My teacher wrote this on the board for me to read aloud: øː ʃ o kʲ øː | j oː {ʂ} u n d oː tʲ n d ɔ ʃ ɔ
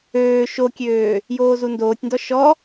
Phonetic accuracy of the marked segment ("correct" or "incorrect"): incorrect